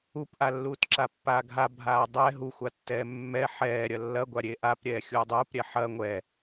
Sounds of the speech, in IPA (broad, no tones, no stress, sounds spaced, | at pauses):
u p ʔ a lː uː t ǁ a pː aː ɡʱ a bʱ aː dˤ ɛ ɦ u xʷ a tː ɛː mː ɛ ħ ɛː ɾʲ ɐ lː ɐ ɡʷ a ɾʲ e ʔ a p ɾʲ ɛː xʲ uː dˤ uː p ɾʲ ɛ ħ ɐ ŋʷ ɛ